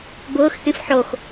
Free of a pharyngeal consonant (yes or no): no